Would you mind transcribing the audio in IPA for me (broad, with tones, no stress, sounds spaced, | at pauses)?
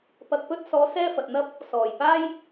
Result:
p ɐ˧ k̚ p ɵ˥ t̚ s ɔː˨˥ s ɛː˥ f ɐ˨ t̚ n̪ ɐ˥ p̚ | s ɔː˨˩ j p aː˥ j